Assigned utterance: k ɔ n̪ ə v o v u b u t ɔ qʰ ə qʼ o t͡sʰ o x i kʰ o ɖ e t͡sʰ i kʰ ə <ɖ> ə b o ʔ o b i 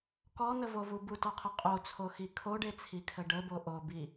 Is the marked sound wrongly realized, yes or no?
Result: no